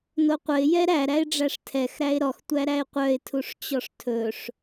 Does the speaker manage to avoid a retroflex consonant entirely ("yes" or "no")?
no